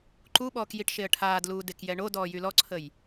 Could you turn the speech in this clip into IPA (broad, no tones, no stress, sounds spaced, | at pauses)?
ǃ u ɓ ɔː k j i ʈ ʃ e ə̯ ʈʰ aː d l uː d e k j ɛ ɳ o d ɔː j y l ɔ ǀʰ ə j